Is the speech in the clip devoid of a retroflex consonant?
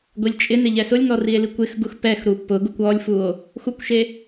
yes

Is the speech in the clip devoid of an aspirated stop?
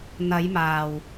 yes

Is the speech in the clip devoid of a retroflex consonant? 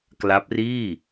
yes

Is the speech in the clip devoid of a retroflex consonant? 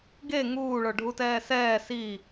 no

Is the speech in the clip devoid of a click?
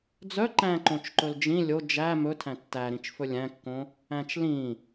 no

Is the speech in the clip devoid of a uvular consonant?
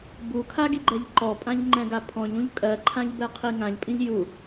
no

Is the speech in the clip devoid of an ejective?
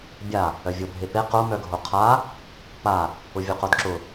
yes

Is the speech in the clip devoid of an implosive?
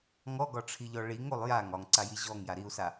yes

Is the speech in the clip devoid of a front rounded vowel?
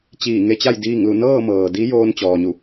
yes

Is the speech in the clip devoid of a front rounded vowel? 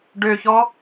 no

